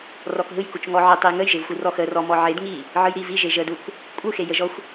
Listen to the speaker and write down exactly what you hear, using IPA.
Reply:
r ɔ k ɦ ɯ j k u t͡ʃ ŋ ɔ ʕ ə tˤ e j ŋ ə j ʒ e v xʷ i r ɔ x ə r ɔ m ɔ ʕ e d ŋ i | ʕ ɯ j ɾ i v i ʒ e ʒ ə d u k | kʷʼ ɯ x e j ə ʒ ɔ xʷ

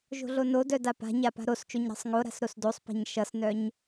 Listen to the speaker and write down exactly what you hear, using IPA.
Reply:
ʒ o̤ ɮ o n o d œ d a p a̤ ɲ a p a̤ ɾ o s t͡ʃ o ɲ ɾ ɑ̤ sˤ ŋ o ɾ a̤ s ɾ o s d o sˤ p a̤ ɲ ʃ ʌ s n œ ɲ

